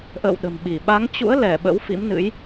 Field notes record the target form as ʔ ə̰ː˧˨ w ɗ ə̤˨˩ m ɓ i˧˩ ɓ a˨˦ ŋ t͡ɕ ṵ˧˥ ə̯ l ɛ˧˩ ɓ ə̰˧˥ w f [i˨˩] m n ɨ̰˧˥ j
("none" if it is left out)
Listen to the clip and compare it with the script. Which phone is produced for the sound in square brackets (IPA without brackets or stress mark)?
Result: ḭ˧˥